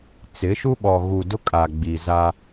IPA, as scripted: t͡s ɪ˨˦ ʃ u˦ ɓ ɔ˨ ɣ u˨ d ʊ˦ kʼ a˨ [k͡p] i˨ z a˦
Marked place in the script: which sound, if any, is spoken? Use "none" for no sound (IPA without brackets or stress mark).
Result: ɡ͡b